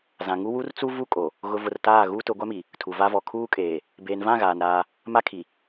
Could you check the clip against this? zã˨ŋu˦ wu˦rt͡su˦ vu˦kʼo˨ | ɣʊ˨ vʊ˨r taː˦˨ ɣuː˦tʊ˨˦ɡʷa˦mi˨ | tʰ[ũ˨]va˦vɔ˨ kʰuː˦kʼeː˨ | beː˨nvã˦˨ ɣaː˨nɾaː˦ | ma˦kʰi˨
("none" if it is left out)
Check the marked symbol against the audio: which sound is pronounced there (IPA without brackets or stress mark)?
u˨